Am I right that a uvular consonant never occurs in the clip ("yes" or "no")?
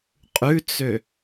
no